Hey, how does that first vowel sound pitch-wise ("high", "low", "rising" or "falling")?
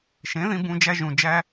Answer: rising